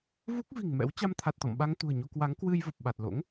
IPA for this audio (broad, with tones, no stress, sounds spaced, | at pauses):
v u˦˥ k̚ v i̤˨˩ ŋ m ɛ̰˧˥ w t͡ɕ a˧ m t̪ʰ a˨˩ t̚ t̪ ɔ̰˧˨ m ɓ a˧ ŋ t̪ ṳ˨˩ ə̯ ɲ o˧ k w a˨˦ ŋ k w ɨ˧ j v ə˨˩ p̚ ɓ a˨˩ t̚ l o̰˧˥ ŋ